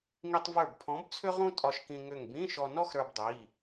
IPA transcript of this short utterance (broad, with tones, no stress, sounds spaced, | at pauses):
ŋ i˧ tˤ v ə˞˧˩ b pʰ ɔ̃˨˥ b t͡sʰ ʏ˥ ʁ ũ˥ tʼ ɒ˧ ʃ k ĩ˧ ŋ ʏ˧˩ ŋ b ĩ˧˥˧ ʃ ɔ˧ n ɔ˥ x ɾ ə˞˧ b dˤ i˩˧˩